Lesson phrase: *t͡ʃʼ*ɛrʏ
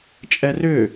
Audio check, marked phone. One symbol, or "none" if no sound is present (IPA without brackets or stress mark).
t͡ʃʼ